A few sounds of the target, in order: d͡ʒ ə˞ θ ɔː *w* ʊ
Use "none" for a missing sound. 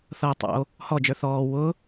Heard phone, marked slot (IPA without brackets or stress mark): w